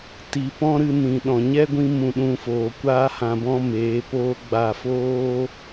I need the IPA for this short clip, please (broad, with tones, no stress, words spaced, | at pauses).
ti˨ pɔ̃˦ɾɨ˧ nĩ˨ɗɔ̃˨ ɲɛ˦ɡʷĩ˧ mũ˦˨ɗũ˦foː˧ kʷaː˦hã˧bɔ̃˦ meː˨˦poː˦ɡ͡ba˦˨ foː˦